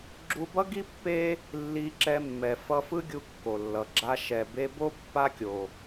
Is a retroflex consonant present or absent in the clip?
absent